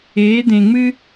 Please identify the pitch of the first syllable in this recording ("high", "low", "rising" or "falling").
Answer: rising